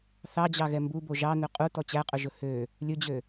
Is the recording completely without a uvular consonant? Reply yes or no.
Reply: no